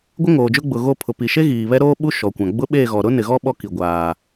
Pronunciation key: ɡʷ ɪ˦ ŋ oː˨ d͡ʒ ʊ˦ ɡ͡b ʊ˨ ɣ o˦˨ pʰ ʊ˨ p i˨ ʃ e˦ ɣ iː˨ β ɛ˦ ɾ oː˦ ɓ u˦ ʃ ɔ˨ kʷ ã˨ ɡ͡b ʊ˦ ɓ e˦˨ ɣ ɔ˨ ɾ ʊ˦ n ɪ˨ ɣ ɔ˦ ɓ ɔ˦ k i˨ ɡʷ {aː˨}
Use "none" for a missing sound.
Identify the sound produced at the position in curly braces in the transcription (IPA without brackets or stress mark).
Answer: aː˨